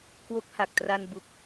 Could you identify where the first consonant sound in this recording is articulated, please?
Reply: velar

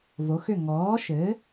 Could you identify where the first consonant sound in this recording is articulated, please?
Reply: labial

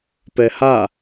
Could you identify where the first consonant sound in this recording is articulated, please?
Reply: labial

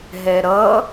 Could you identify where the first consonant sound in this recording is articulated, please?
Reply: glottal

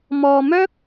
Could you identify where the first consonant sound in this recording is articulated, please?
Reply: labial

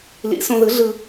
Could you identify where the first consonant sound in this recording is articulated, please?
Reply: alveolar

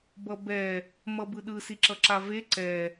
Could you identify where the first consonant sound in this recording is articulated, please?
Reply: labial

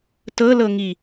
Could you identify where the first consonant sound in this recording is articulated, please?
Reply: alveolar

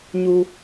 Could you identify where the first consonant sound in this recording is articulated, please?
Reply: palatal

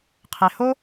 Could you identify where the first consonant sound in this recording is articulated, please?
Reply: uvular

